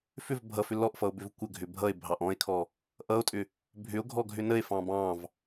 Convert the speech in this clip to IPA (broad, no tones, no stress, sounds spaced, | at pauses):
f ʏ v bʱ ʌ f ʏ l ɔ ʔ f ʌ o̯ b ʏ v kʷ ə ɡʱ ʏ bʱ ʌ e̯ bʱ ɑ ʔ ɔ̃ e̯ kʰ ɔ | ʔ ʌ o̯ tʼ ʏ | bʱ ʏ o̯ ɡʱ ɔ ɡʱ ʏ n ə e̯ f ɑ̃ b ɑ̃ v